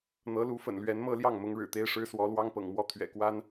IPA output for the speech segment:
n̪ ɤ˧˥ l u˧˥ f ə̰˨˩ n l ɥ ɛ˧˥ n m ɤ˥ l j ɑ˥˩ ŋ m ʊ˧˥ ŋ ɻ ɻ̩˨˩ t̪ e˥ ɪ̯ ʂ ɻ̩˥ s w ɔ˧˥ l w ɑ˥ ŋ p ɤ̰˨˩ ŋ m w ɔ˥˩ t̪ʰ ɥ ɛ̰˨˩ k w a˥ n

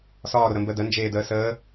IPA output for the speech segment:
s ɒː ɾ ʊ ɾ ə m b ə d ə n d͡ʒ eː d əː s əː

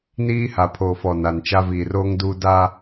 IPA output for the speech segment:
n iː˦ h a˨ pʰ oː˨ f ɔ˨ n a˨ n t͡ʃ a˦ v iː˨ r oː˦ ŋ d uː˦ d a˦

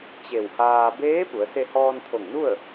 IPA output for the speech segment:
t͡ɕ e˧˩ w h aː˧ b eː˧˥ p u˩˧ ə̯ s e˧ h ɔː˧ n t̪ʰ o˧˩ ŋ n u˥˨ ə̯

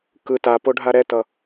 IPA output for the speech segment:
k ɯ t a p o ɖʱ a ɾ ɛ t ʌ

